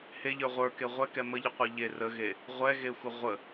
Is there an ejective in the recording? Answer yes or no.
no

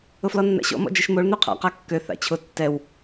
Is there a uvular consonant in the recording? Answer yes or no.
yes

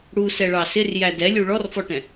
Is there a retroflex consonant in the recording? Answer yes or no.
yes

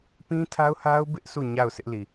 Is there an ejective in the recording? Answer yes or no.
no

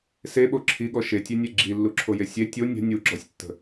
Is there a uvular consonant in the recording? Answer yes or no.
no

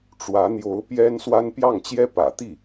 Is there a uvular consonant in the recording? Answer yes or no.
no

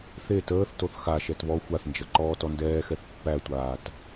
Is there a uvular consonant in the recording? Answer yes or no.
no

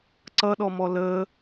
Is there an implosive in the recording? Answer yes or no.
yes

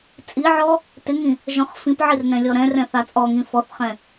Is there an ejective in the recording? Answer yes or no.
yes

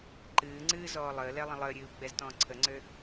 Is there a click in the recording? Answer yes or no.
yes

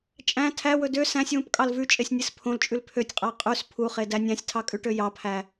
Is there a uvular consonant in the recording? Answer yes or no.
yes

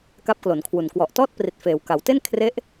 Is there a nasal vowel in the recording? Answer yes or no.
no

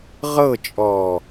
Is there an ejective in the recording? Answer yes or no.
yes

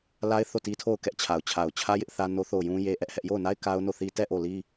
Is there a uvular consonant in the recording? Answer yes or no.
no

